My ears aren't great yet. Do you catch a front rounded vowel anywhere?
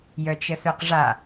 yes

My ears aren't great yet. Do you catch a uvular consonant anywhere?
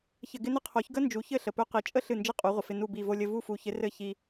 yes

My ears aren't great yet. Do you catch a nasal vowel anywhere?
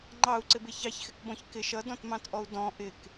yes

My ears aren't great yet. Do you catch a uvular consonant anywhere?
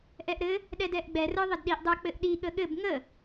no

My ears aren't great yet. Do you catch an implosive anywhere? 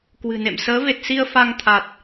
no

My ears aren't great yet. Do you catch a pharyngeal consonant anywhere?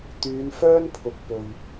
no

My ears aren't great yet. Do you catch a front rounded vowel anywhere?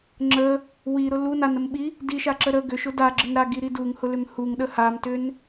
yes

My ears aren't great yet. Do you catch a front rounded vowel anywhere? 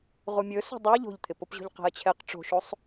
no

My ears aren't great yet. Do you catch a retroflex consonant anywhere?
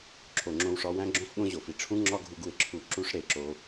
yes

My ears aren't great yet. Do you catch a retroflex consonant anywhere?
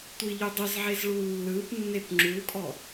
yes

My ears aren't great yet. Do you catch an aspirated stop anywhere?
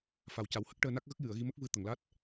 no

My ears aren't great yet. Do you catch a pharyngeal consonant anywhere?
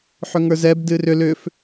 yes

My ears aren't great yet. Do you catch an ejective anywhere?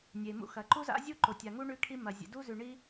no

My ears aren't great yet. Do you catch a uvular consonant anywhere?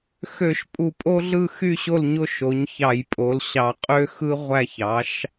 yes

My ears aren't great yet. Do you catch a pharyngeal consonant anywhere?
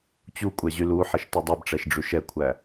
yes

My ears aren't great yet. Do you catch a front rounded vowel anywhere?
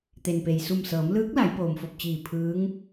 no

